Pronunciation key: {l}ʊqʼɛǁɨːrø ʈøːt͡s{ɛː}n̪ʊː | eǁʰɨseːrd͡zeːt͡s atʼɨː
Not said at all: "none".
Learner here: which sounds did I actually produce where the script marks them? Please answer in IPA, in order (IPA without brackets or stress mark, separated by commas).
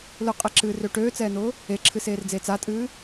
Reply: l, ɛː